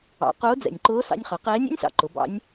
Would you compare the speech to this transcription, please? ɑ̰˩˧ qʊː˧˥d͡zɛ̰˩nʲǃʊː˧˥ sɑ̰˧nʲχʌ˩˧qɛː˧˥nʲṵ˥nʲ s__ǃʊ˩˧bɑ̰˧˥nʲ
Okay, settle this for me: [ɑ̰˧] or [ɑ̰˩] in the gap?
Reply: ɑ̰˩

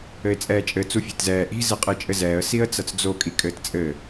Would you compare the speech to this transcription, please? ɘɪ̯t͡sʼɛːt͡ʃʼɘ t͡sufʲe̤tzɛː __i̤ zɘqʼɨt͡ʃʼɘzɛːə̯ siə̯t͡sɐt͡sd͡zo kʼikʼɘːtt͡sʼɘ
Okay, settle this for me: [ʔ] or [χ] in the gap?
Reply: ʔ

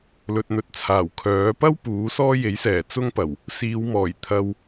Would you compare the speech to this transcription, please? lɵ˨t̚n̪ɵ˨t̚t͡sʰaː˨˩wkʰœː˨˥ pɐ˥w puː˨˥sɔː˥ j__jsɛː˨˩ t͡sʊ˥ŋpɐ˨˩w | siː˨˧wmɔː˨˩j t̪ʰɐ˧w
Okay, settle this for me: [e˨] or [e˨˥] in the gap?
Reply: e˨˥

